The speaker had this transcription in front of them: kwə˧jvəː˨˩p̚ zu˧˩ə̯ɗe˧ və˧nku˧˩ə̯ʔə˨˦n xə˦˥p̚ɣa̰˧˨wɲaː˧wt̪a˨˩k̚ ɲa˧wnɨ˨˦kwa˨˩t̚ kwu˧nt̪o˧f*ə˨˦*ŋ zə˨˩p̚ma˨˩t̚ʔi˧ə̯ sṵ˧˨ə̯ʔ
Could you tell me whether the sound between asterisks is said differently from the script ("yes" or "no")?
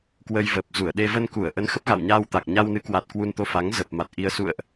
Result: yes